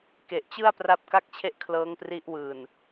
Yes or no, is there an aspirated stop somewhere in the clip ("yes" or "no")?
yes